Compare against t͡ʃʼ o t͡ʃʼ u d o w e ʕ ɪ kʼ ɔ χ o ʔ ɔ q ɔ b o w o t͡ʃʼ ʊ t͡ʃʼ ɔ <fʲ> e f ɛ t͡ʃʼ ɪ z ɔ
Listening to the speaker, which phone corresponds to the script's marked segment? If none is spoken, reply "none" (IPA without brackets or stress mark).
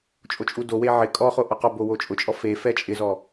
f